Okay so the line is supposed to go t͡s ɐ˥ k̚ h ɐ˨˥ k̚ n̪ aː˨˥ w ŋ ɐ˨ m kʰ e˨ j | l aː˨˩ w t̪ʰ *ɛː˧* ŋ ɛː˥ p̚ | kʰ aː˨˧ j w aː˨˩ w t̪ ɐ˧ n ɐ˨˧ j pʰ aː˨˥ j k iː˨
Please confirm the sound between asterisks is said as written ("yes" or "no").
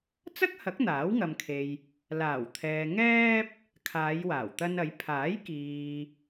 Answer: no